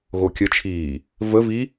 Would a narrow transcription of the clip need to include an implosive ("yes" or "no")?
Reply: no